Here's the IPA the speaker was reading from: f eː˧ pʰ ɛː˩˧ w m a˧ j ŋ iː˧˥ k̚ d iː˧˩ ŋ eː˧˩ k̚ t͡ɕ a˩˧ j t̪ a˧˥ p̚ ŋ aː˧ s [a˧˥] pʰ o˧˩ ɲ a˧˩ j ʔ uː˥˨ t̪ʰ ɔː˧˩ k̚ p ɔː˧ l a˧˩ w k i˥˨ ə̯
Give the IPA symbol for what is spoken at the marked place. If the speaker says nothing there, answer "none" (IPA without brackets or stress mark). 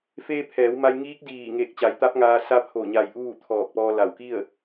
a˧˥